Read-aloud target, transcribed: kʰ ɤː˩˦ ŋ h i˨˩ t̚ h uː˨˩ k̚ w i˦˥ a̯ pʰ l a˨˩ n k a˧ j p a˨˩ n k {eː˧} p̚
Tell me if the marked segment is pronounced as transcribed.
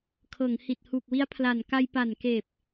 no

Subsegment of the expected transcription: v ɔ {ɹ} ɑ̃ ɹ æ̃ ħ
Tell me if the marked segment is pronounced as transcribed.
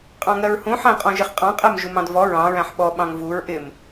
yes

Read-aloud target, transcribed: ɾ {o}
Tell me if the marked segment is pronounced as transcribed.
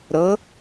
no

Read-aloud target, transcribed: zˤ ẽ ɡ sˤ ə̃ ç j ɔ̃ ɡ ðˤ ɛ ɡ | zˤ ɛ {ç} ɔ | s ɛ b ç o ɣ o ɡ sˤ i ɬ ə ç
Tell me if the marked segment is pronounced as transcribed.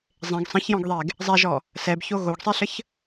no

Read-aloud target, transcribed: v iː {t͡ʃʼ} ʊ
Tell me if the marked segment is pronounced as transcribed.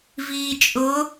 yes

